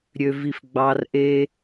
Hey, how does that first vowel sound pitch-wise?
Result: low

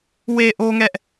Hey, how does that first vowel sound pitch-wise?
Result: low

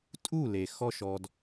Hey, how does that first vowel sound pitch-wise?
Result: falling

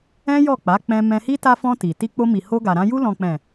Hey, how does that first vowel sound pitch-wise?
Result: high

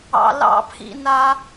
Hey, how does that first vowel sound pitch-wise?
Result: low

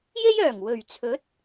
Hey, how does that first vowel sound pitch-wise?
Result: high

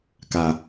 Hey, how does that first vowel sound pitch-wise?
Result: low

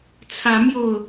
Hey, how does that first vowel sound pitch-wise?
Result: rising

